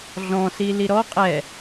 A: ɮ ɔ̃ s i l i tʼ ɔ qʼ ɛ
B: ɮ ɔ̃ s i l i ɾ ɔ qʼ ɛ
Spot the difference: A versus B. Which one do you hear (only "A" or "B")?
B